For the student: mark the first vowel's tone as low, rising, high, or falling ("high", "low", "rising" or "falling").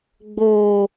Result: low